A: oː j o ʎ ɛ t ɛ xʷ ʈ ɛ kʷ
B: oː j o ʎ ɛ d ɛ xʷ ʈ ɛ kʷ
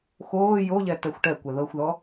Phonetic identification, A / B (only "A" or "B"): A